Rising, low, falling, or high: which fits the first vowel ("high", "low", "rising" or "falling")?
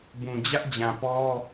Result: low